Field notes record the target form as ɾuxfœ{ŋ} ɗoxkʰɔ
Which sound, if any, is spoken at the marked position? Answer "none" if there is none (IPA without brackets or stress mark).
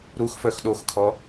x